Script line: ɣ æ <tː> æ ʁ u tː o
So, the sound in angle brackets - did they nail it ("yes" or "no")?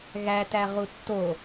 no